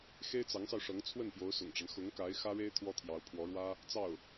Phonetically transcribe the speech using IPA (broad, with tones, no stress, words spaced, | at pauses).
xe˥ɪ̯t͡sɑ˧˥ŋsɑ˧ʊ̯ʂɤ˧˥ŋ t͡sʰwə˥˩npjo˧˥ʊ̯ sʊ̰˨˩ŋʈ͡ʂa˦n xʊ˧˥ŋka˧˥ɪ̯ xä˥ɻe˥ɪ̯ t̪ʰwɔ˥t̪ʰjɑ˧˥ʊ̯pʰwɔ˧˥ɻwä˥ | t͡sɑ˥˩ʊ̯